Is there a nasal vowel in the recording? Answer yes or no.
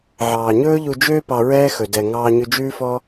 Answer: no